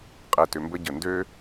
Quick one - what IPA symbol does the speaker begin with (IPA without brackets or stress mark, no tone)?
qʼ